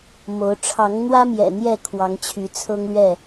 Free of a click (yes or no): yes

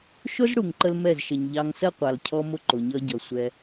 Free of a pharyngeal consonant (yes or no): yes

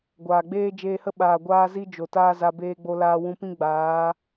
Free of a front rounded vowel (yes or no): yes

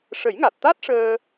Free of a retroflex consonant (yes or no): no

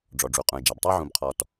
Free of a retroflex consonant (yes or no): no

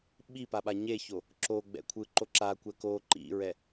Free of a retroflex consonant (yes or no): yes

